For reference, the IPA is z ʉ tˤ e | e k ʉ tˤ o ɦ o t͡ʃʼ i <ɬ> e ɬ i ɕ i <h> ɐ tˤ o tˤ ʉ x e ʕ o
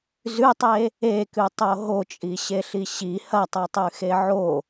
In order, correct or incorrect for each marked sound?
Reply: incorrect, correct

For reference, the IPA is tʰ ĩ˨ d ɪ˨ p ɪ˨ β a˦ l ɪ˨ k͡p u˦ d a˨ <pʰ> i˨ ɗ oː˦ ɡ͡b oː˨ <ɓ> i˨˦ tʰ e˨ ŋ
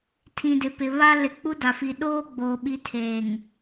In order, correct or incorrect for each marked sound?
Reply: incorrect, correct

